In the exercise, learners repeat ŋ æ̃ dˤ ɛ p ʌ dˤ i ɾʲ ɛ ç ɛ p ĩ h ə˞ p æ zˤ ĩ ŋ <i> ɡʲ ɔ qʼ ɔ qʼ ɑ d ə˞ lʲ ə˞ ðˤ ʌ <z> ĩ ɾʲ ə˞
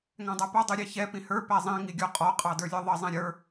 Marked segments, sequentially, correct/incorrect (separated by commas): correct, incorrect